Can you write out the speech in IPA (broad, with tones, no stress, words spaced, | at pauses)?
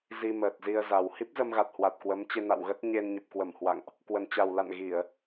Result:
zi˧ məː˨˩t̚zi˧ə̯za˨˩w hi˦˥p̚zə˧mɣa˨˩t̚hwa˨˩t̚ kwə˨˦m t͡ɕe˧na̰˧˨wɣə˦˥t̚ ɲe˧nɲə˨˩p̚kwə˧˩mhwa̰˧˨ŋʔ | kwə˨˩nt͡ɕa˨˩wla̰˧˨n ɣi˧˩˨ə̯